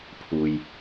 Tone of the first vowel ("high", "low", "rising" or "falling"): low